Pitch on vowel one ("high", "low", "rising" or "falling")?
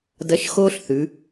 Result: rising